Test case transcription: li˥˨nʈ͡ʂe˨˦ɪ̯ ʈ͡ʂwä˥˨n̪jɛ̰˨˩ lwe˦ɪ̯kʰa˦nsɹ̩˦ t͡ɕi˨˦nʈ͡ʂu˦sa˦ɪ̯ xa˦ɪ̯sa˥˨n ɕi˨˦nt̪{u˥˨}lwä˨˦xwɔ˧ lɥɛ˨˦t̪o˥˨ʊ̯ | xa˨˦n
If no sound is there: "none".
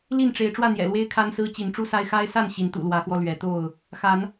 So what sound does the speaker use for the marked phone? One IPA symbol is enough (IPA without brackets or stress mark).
ṵ˨˩